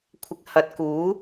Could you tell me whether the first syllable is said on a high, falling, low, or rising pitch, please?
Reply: rising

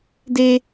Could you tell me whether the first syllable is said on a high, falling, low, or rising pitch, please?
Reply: high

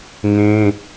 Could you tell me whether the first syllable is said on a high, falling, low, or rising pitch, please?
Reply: high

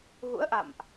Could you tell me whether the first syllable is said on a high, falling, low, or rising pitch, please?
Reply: rising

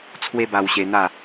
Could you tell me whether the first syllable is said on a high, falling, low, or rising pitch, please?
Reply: high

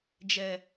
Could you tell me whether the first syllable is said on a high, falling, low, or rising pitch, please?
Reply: low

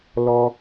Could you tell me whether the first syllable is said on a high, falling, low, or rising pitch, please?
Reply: high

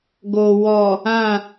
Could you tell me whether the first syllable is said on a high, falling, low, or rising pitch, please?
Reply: low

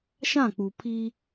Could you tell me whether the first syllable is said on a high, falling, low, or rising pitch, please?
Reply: falling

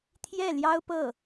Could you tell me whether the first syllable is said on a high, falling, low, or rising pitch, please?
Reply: falling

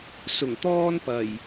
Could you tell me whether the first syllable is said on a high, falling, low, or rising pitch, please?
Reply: low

